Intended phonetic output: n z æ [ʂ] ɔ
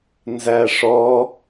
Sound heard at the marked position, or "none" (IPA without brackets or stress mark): ʂ